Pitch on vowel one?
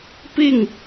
falling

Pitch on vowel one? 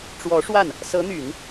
rising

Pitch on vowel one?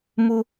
high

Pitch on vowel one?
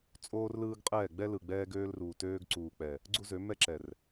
high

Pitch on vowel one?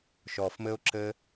low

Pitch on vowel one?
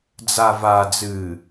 low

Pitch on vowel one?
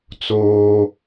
high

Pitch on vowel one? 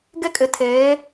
high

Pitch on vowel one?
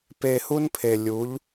low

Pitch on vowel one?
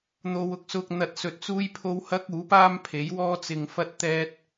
low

